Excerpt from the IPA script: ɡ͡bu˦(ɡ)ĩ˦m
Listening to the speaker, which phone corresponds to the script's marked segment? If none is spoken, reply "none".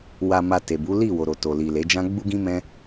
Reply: ɡ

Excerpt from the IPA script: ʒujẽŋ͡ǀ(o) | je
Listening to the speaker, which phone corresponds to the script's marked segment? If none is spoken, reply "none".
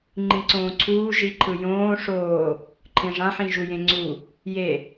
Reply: u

